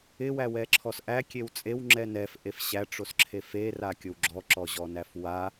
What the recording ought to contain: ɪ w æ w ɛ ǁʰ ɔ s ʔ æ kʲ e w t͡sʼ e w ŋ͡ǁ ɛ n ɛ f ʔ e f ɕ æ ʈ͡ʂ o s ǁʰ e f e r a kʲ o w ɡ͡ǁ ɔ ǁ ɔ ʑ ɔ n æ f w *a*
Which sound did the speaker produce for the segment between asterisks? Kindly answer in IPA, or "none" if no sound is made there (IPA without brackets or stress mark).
a